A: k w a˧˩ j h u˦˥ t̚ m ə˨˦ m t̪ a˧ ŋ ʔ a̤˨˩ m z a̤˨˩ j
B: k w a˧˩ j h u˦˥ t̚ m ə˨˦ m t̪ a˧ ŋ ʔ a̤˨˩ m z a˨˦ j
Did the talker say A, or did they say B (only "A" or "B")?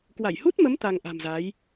B